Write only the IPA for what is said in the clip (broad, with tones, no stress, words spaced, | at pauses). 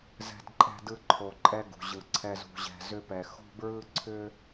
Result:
zɛ̤˧dǃʼɛ̤˧dɯ˧ ǃʰo˨ǃʼɛ˧ ɡṳ˨ʑɯ˨ǀʰɛ˧z ṳ˨ʑɛ̤˨zʏ˧pɛ˨ xo̤˦bɹɯ˦ ǀʰʏ˦